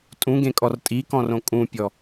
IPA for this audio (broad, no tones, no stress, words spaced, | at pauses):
tʼũɡẽkʼɔr tʼikɔ̃rõ kʼũpʲɔ